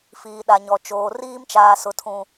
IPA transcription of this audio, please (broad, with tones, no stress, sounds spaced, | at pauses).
f iː˨ ɗ a˨ ɲ ɔ˨ t͡ʃ oː˨ r iː˦ m t͡ʃ aː˨ s ʊ˨ tʰ ũ˨